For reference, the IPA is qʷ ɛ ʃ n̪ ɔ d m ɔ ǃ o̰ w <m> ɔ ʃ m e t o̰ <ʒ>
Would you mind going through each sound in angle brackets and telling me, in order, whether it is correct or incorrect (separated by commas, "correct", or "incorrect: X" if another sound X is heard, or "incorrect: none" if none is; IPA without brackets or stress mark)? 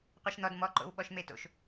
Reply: incorrect: ɓ, incorrect: ʃ